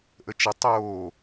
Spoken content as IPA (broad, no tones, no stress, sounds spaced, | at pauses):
ʔ ə t͡ʃ ə tˤ oː